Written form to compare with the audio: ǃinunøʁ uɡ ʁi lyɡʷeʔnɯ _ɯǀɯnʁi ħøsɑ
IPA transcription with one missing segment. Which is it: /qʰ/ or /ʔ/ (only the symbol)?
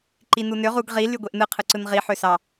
qʰ